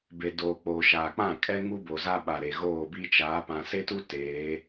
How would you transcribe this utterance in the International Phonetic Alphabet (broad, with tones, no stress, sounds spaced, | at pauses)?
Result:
b e˨ d oː˨ k͡p oː˨ ʃ aː˨ k͡p ã˦˨ kʼ ɛ˦ ŋ u˦ b o˨ z a˦ ɓ a˨ ɾ e˨ ɣ oː˦˨ b i˦ t͡ʃ aː˨˦ p ã˨ s e˦ t u˦ t eː˨˦